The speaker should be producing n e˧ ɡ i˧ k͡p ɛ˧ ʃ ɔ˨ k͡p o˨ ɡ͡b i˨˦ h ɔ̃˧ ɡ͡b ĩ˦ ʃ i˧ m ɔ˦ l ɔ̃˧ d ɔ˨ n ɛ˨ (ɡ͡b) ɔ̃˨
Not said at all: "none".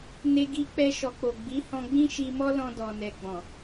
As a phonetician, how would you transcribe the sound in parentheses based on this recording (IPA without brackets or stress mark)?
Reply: ɡ͡b